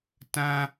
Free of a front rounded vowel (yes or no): yes